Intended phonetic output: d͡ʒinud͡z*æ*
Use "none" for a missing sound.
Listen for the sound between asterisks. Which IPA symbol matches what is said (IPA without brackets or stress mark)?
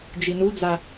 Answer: a